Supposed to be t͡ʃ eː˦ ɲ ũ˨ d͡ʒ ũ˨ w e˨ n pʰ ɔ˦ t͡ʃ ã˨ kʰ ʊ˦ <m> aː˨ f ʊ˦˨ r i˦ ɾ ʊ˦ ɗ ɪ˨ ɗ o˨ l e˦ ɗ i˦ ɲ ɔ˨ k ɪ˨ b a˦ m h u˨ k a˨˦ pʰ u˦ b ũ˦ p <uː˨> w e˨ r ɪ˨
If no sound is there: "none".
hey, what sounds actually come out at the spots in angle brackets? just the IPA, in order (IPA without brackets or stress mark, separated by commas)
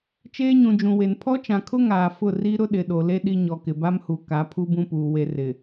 ŋ, uː˨